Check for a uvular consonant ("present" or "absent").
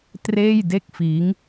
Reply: absent